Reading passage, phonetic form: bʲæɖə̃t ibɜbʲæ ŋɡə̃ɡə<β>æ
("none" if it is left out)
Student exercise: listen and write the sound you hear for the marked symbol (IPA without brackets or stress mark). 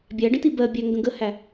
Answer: h